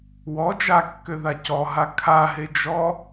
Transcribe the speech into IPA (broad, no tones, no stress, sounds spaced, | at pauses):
w ɔ d͡ʒ a kː ø ð a c ɔ ɦ a kʰ a ɦ e d͡ʒ ɔ